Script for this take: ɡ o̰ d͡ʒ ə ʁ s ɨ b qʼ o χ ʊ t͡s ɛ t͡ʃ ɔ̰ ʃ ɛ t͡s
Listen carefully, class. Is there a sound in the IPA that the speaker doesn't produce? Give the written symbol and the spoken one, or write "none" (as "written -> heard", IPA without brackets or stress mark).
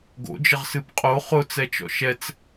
none